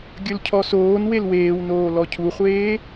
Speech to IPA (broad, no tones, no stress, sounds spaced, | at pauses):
ɡʲ ɵ l cʰ ɔ s oː n w e l w eː w n oː l ɔ cʰ u χʷ eː